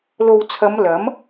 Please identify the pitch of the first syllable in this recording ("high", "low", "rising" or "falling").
low